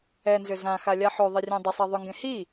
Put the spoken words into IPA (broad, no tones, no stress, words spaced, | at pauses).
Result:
ɛnzʏ zãxa lʲaħoðˤɛ rʲẽdˤʏsˤi ðˤʏŋɡẽ hi